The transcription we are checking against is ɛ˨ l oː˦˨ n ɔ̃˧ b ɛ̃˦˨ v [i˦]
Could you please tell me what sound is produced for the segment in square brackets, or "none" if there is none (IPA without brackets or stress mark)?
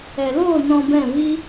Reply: i˦